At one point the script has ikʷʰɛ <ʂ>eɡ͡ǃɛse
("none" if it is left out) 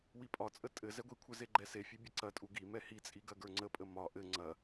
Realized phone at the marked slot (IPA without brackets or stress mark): z